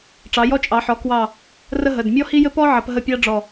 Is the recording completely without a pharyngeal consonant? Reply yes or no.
no